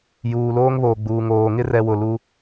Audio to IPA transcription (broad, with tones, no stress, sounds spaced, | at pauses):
j uː˨ l oː˦ ŋ β oː˨ ɡ͡b uː˨ ŋ oː˨ ŋ ɪ˦ r ɛ˨ w ʊ˨ l u˦